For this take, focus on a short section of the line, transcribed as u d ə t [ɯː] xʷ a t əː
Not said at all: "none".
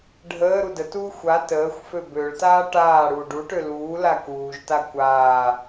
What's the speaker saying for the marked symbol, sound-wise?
uː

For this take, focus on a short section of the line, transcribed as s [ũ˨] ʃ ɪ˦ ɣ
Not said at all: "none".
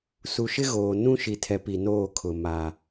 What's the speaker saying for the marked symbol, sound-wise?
u˨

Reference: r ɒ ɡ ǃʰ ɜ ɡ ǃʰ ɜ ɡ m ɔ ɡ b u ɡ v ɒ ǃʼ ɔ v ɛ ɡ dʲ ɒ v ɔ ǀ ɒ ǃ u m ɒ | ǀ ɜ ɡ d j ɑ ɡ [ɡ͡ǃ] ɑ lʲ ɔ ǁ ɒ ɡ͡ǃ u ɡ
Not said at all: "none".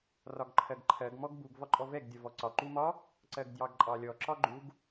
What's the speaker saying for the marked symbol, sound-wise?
ǃʼ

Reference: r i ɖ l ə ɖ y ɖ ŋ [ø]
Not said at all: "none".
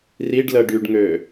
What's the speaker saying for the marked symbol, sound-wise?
ø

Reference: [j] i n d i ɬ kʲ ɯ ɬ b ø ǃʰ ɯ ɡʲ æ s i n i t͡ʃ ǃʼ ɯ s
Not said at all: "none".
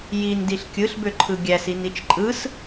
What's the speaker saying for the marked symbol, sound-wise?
j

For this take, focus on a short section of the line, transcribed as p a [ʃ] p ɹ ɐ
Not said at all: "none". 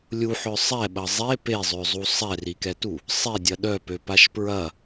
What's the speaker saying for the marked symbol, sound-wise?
ʃ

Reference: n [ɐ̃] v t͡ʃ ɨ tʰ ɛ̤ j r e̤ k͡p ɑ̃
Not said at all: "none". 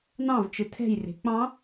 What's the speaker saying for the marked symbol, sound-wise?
ɑ̃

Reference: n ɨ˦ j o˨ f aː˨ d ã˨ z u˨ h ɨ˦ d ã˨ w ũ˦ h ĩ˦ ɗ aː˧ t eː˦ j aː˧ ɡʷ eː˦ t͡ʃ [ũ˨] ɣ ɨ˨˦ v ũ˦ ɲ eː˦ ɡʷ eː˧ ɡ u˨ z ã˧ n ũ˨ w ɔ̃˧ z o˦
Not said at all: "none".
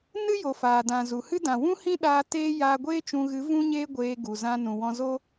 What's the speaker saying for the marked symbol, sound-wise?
ũ˧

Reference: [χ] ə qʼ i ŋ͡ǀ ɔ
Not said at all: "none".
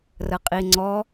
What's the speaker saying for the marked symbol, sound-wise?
r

